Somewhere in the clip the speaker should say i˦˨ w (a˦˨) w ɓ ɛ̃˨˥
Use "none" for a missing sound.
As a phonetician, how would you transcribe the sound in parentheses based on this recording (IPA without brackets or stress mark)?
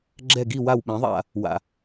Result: a˦˨